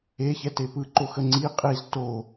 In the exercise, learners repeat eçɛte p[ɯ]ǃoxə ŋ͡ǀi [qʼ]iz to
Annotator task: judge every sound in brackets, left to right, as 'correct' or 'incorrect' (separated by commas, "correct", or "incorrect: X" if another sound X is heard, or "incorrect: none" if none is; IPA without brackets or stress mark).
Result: correct, correct